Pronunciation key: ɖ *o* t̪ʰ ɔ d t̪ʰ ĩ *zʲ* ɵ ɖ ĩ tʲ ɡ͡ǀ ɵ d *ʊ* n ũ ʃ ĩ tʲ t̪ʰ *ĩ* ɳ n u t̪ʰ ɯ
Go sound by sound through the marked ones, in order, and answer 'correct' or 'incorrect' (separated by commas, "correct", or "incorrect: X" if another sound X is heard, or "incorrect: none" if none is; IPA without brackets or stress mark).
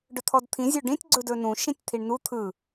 incorrect: ɵ, correct, incorrect: ɵ, incorrect: i